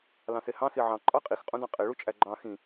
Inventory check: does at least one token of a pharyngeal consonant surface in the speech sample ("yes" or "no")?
yes